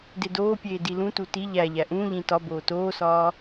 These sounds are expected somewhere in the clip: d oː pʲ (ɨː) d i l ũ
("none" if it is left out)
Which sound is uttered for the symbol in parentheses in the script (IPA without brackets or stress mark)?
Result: eː